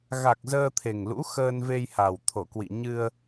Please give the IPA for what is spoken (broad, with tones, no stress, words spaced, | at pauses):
ɣa˨˩k̚ zəː˧t̪ʰe˨˩ŋlṵ˧˥ xəː˧nve˧jha˨˩w t̪ʰo˧˩kwḭ˧˨ ɲɨ˧ə̯